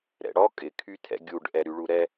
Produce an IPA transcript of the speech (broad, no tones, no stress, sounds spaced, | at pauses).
ɾ ɛ̰ ɽ ɔ kʼ ɪ kʰ y tʰ ɛ̰ ɡʲ u ɖ ʔ ɛ ɾ y ɭ u ɾ ɛ